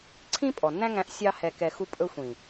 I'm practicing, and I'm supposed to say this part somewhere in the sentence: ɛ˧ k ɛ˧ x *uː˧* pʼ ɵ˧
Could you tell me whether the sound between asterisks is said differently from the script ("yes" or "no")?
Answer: yes